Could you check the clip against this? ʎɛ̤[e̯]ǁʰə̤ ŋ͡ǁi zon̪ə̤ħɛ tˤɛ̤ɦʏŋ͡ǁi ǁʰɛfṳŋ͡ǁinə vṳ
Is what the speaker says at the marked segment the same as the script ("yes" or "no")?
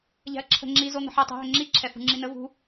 no